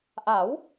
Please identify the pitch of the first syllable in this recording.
rising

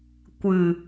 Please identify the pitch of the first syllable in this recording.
low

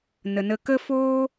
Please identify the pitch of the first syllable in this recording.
low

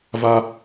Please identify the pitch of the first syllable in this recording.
high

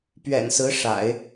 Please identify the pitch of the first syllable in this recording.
low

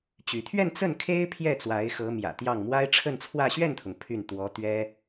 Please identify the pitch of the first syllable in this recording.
rising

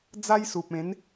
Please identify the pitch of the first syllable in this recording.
high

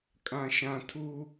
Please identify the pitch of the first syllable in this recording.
high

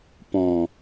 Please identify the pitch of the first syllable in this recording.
low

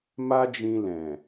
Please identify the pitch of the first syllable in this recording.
high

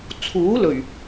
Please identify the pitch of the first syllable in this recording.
rising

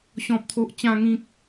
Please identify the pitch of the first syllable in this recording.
low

